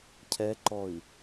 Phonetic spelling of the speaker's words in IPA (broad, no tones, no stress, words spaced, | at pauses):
cʰɛǃɔi̯